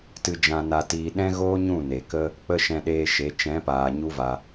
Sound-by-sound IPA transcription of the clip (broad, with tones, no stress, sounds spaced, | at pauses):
t ɨ˧ d͡ʒ ã˧ n a˧ t iː˧ ɗ ɛ̃˦ ɣ oː˦ ɲ ũ˦˨ n e˨ k ə˦ | k͡p ə˦ ʃ ɛ̃˧ ɗ eː˧ ʃ e˨˦ t͡ʃ ɛ̃˨˦ p aː˨ ɲ u˦ v a˧